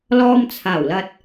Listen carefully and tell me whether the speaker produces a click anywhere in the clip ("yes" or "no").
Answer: no